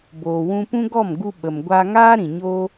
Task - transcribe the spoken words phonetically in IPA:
b oː˨ w ũ˧ p ũ˦ ɡ ɔ˦˨ m ɡ u˧ ɓ ə˨ m ɡʷ a˧ ŋ aː˦ ɾ ĩ˨ ɲ oː˦

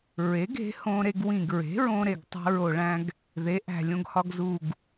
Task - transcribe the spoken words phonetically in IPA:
ɹ e˩˥ ɡ e̤˩˥ h õ˧ ɾ e˧ ɡ w ĩ˨˩ ɡ ɹ e̤˩˥ ɹ õ˧ ɾ e˨˩ ɡ tˤ æ̤˧ ɹ o˨˩ ɭ æ̃˧ ɡ | ð e˩˥ ʔ æ̤˨˩ lʲ õ˧ ɡ h ɒ˧ ɡ z u˨˩ ɡ

